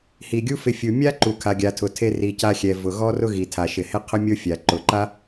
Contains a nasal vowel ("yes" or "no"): no